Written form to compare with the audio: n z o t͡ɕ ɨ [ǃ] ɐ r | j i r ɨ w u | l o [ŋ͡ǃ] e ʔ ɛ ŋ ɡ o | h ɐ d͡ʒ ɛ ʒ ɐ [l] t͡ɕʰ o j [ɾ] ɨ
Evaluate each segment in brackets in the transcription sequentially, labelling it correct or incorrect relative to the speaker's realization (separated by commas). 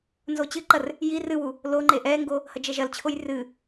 correct, correct, correct, incorrect